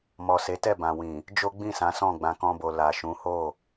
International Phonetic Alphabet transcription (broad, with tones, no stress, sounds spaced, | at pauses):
m ɔ˨ s e˨˦ t ɛ˦˨ b ã˨ w ĩ˨ | d͡ʒ o˦ ɡ͡b ĩ˦˨ s ã˨˦ s ɔ̃˦˨ ɡ͡b ã˧ k ɔ̃˦ b o˧ l a˨ ʃ ũ˨˦ h o˦˨